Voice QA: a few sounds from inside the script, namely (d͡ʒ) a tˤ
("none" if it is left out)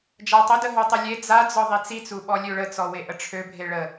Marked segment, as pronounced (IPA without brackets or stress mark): d͡ʒ